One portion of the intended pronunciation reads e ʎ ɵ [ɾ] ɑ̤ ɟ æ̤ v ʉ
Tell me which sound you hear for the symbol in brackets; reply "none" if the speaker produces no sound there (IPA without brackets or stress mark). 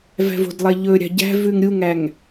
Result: ɾʲ